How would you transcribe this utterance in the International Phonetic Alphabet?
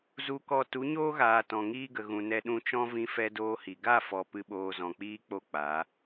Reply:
zu˧kɔ˧ tu˨˦ɲoː˦ɣaː˨ tɔ̃˨ŋiː˦ɡə˨ ɣũ˨nɛ˧ ɗũ˧t͡ʃɔ̃˦ vĩ˦fɛ˦doː˦hi˨ ɡa˦˨fɔ˨ pɨ˧ɓoː˧zɔ̃˨k͡piː˦ k͡po˦k͡pa˨˦

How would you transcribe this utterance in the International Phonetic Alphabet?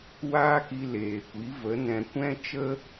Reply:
waː˦ki˧leː˨kʷi˨˦ və˨˦ nɛ̃˧ kʷɛ̃˦ t͡ʃə˦

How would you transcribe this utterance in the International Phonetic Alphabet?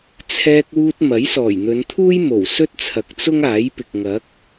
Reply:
t͡sʰɛː˧k̚wuː˧t̚ mɐ˨˥jsɔː˨˩jn̪ɵ˨˧nt̪ʰuː˥j mo˨˩wsɵ˥t̚t͡sʰɐ˨k̚t͡sʊ˥ŋ aː˨˥jpɪ˨k̚ ŋɐ˨˥k̚

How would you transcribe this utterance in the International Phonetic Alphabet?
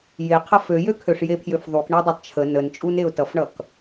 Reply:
je qʰʌføjø kʰøʂjepʰjøfðˤuk ɳɛdˤɛtˤt͡ʃʰə nənt͡ʃʼuneʊ̯ tʌfɳʌk

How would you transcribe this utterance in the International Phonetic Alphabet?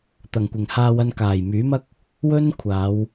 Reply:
t̪ɐ˨˩ŋkʷɪ˨˩ŋhaː˧wɐ˧n kaː˨˩jmyː˨˥mɐ˥k̚ | wɵ˥n kʷʰaː˨˧w

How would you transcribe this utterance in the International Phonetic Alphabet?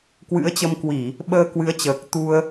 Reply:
kwɨ̰˧˥ə̯t͡ɕə˧mkwi˧˩˨ | ɓəː˧kwɨ˨˦ə̯t͡ɕəː˨˩k̚ t̪u˧ə̯

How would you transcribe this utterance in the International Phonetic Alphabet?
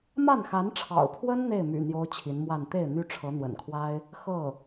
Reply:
ma˥˩nxa˧˥nʈ͡ʂʰɑ̰˨˩ʊ̯pʰwə˥n n̪e˥˩ɪ̯my̰˨˩ n̪jo˥ʊ̯t͡ɕʰi˧˥nmwa˥˧n t̪e˥˩ɪ̯ n̪y˥ʈ͡ʂʰɤ˧˥n̪wə̰˨˩nkʰwa˥ɪ̯ | xɤ˥˩

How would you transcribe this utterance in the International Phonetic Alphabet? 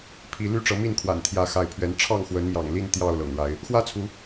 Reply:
pʰi˨˦ ly˦ʈ͡ʂɤ˨˦ mi˥˨nkʰwa̰˨˩n t̪ʰjä˥˨xa˥˨ɪ̯pʰɥɛ˦n ʈ͡ʂʰɑ˥˨ŋxwə˨˦nmjɑ̰˨˩ŋli˥˨n t̪jɑ˥˨ʊ̯lɤ̰˨˩ŋɻa˨˦ɪ̯ | xwä˦t͡sʰu˨˦

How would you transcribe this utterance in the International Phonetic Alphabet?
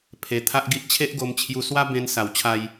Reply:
pʰe˧t̪ʰa˦ʔɡi˦ʔ t͡ɕʰe˦ʔɡo˧mt͡ɕʰju˧swa˦ bẽ˧nsa˨˩w t͡ɕʰa˧j

